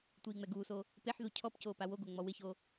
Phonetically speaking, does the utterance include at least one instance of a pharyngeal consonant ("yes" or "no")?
yes